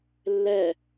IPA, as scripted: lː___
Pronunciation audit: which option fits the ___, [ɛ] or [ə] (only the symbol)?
ɛ